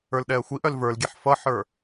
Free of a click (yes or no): yes